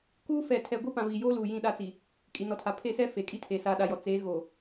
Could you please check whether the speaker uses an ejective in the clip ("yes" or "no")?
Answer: yes